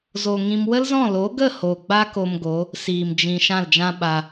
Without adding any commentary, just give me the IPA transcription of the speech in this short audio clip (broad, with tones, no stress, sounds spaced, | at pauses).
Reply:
z o˨ ŋ ĩ˧ m w ə˦ l z ɔ̃˦˨ l o˨˦ ɡ ə˦˨ h oː˨ ɡ͡b a˦ k o˧ m ɡ o˨˦ | s iː˨ m d͡ʒ ĩ˨ ʃ ã˦˨ l d͡ʒ ã˦ ɓ a˧